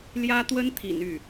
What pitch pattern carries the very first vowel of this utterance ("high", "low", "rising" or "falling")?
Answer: high